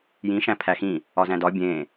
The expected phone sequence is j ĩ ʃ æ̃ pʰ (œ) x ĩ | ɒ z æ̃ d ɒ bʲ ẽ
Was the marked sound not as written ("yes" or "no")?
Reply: yes